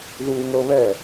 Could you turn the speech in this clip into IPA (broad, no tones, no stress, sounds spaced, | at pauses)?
ð uː ŋ ɤ β ɛ